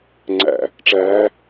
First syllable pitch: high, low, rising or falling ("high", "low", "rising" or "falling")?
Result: low